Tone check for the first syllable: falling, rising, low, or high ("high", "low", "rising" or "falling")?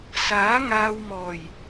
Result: rising